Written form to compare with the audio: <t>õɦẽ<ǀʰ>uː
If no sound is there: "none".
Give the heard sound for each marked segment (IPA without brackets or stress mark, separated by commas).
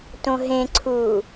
t, ǀʰ